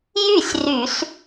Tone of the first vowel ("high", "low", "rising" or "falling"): falling